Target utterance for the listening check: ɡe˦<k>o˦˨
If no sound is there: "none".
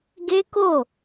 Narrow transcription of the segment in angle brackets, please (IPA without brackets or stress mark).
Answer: k